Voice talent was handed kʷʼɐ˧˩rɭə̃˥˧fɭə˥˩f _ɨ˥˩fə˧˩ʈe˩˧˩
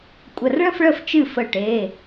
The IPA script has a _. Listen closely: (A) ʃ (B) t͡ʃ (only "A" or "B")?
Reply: B